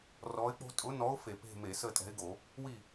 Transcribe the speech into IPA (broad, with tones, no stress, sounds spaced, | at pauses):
r ɔ˨˥ ɪ̯ k͡p o̤˦ tʼ ʊ˨˥ n ɔ˨˥ ʊ̯ f e˧˩˧ p e̤˦˨ m e˧˩˧ s əː˦˨ tʼ ɛ̤˨˥ ɪ̯ ɡ o˧˩˧ | w i˦˨